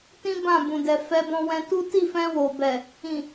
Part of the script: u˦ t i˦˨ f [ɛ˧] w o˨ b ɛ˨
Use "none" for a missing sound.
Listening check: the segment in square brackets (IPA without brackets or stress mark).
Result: ɛ̃˧